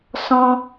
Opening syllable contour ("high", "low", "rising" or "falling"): high